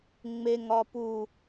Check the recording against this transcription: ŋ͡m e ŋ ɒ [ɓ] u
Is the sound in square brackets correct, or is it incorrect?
incorrect